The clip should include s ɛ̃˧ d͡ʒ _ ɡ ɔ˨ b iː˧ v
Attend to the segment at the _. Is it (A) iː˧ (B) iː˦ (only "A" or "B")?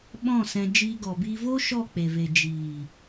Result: A